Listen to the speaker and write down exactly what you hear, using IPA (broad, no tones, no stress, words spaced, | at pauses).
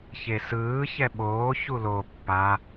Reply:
çesɯː çɛɓoː çulo pːa